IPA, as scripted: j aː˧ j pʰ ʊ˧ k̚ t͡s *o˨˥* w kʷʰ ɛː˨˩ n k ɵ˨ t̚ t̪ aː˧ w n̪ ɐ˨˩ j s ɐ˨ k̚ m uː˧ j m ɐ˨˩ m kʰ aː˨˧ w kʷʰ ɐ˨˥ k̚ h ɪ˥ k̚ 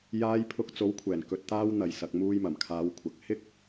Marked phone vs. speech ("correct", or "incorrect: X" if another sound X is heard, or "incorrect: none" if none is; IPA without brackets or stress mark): correct